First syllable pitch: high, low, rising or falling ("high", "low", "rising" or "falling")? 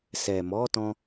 low